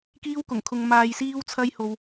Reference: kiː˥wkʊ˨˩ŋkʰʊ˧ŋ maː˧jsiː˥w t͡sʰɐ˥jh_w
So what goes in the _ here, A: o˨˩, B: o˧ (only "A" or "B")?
B